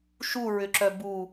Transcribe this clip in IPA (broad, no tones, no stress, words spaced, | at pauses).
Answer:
ʃuɹʏǁœ bu